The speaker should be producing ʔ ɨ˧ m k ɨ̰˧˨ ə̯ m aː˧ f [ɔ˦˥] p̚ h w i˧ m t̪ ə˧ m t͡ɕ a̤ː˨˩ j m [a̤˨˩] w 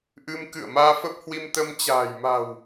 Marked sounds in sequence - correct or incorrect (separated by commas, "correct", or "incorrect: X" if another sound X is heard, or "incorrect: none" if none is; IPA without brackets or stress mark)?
incorrect: ə˦˥, correct